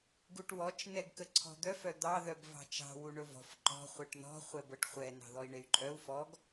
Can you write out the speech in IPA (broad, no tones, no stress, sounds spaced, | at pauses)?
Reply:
ɡ u ʈ w ɔ t͡ʃ n ɛ ɡ k ə ǀʰ ɔ̤ d̪ œ f œ d̪ ɑ ð œ b v ɑ̤ t͡ʃ ɑ̤ w u ɳ ɵ v ɔ̤ f ǃ ɔ̤ χʷ ɛ ʈ n ɔ̤ χʷ ɛ b ɤ ʈ χʷ ɛ n ɑ̤ ð ɔ i̯ ɳ e y̯ ǃʼ œ u̯ f ɔ ɡ